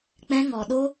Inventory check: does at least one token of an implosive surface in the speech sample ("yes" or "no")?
yes